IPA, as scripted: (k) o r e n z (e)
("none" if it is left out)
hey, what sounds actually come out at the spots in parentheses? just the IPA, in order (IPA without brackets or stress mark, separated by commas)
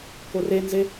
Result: k, e